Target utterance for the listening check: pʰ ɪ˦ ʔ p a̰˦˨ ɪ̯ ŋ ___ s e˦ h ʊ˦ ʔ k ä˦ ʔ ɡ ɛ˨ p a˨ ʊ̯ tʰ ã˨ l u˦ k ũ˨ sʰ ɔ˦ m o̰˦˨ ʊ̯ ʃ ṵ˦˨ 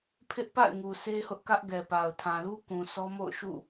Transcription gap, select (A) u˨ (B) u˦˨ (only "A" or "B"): A